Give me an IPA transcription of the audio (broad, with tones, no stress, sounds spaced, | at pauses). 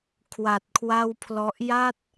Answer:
kʰ w a˨˩ t̚ kʰ w a˥˩ w pʰ l ɔ˦˥ ʔ j a˥˩ t̚